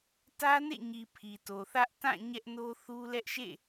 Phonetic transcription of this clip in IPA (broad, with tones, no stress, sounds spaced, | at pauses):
t ä˦ n ḛ˦˨ ɲ i˨ pʰ i˨ t o˨ θ ä˦ ʔ t ã˦˨ ɲ ɛ˦ ʔ n o˦ θ u˦ l ɛ˦ ʔ ʃ ḛ˦˨